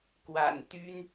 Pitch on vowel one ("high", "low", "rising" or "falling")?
low